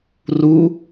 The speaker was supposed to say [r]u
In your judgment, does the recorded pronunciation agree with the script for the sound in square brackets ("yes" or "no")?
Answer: yes